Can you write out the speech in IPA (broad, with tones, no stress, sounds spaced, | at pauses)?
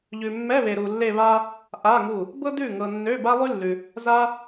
ʎ ʉ˨ mː ɛ˧˥˧ β e˨ ɾ u˨ lː e˥˧ β a˥ | ʔ a˧˥˧ ŋ u˥˩ | b ɤ˥ d ʉ˥˩ ŋ ɤ˨ nː ø˧˥˧ b a˥ lˠ ʉ˥ lː ʉ˨ | z a˥